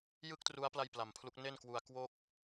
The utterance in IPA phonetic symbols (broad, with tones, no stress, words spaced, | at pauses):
jɯ˥˩k̚tru˦˥a̯ pla˥˩jpla˨˩mpʰlu˦˥k̚ ne˥˩nkwu˧a̯ kwo˥˩k̚